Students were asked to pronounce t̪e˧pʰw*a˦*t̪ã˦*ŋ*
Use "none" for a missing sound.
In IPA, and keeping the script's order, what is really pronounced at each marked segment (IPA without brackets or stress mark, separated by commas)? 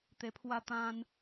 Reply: a˦, n